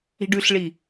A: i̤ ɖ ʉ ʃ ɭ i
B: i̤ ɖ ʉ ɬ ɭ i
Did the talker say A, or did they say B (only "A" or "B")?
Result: B